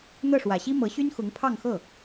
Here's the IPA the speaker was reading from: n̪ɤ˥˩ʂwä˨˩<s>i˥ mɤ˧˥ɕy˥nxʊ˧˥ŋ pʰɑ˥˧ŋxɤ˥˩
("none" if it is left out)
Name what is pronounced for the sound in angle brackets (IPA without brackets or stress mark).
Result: ɕ